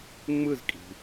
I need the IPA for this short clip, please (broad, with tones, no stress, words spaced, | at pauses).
ŋ͡mɯ˦˨zkʼi̤˩